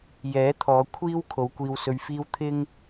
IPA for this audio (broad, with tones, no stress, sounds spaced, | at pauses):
j ɛː˨˥ t̪ʰ ɔː˨˧ kʷʰ iː˥ w kʰ o˨˧ w kʷ iː˧ w s ɵ˧ ɥ f iː˥ w t̪ʰ ɪ˥ ŋ